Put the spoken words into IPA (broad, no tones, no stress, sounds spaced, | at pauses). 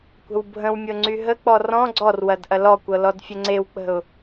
kʷ ə̤ w bʱ ə̃ w mʲ ɤ ŋ͡ǀ y ɦ ə k͡p ɔ r ɔ̃ ɡ͡ǀ ɔ r w ɐ d ʔ ɐ l ɔ kʷ ɤ l ɔ d fʲ ə ŋ͡ǀ e w k͡p ə̤ ʊ̯